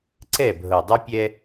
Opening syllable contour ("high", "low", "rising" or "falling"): falling